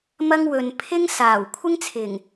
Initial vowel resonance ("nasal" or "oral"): oral